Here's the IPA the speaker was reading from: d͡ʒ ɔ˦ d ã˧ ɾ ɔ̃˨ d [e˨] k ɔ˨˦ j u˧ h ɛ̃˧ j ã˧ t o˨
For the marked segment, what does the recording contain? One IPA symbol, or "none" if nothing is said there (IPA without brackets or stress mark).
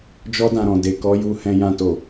e˨